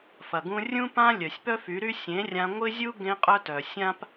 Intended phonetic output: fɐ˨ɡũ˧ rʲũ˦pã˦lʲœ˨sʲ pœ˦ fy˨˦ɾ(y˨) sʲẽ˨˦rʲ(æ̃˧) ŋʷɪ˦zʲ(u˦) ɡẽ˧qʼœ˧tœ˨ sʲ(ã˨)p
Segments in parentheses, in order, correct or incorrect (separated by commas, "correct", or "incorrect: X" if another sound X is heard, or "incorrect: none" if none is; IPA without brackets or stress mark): incorrect: y˦, incorrect: ã˧, correct, incorrect: ã˦